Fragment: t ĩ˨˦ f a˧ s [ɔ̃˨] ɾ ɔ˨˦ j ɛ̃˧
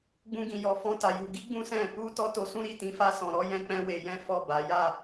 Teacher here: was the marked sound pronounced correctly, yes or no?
yes